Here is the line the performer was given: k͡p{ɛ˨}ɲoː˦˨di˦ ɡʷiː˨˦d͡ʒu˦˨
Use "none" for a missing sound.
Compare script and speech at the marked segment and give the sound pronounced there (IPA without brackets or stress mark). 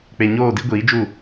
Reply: e˨